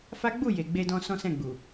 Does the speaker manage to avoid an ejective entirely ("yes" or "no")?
yes